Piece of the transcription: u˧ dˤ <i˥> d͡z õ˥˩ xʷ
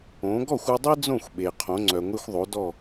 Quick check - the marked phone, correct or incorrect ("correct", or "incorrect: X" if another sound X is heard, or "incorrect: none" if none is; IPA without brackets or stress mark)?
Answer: correct